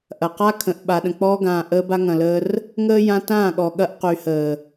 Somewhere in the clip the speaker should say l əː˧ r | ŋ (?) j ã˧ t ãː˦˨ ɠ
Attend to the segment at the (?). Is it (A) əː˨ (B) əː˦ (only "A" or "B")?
B